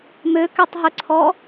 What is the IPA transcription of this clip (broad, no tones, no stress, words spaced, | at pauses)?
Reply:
møkɛtˤɦɵǀʰɔ